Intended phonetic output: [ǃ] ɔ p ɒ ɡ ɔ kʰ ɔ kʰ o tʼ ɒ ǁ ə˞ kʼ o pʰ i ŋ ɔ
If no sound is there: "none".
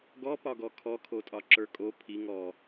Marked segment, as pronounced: ɡ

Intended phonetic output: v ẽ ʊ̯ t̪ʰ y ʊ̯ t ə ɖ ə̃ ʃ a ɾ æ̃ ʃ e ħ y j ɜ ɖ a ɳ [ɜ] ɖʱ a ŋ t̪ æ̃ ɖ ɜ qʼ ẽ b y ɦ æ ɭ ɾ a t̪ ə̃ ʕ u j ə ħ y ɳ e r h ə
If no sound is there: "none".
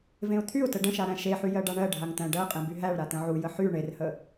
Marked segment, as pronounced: ɜ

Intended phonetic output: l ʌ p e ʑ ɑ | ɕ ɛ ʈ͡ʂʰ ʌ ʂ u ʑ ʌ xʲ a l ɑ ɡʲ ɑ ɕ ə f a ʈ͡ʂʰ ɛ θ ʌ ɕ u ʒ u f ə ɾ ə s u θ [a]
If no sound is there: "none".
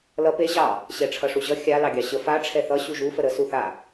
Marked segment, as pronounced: a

